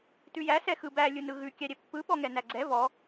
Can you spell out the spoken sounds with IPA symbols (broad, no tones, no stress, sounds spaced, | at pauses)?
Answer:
t ʉ j æ s ɛ x ɯ b æ lʲ ɯ n ɯ ɣ ʉ kʲ æ ɾʲ ɛ pː ɯ ɓ ɔ ŋ ɛ n æ ɡ͡ǀ ɛ v ɔ